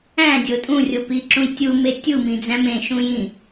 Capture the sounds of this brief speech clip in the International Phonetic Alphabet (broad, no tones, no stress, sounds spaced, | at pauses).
æ̃ dʲ o tʼ ũ rʲ o p i ǁ ũ j tʲ u m e tʲ u m ĩ d͡z æ̃ m ẽ ʃ ũ j ĩ